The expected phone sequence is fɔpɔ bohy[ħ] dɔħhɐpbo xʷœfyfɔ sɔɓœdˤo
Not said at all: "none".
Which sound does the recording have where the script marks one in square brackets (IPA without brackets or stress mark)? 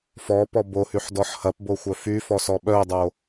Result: ħ